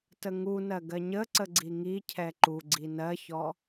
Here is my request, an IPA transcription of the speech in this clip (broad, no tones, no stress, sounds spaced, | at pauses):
t ə ŋ u n ɜ ɡ ɜ ɲ ə ǀ ə ɡ͡ǀ i ŋ i cʰ ɛ ǃ u ɡ͡ǀ i n ɜ ç ɔ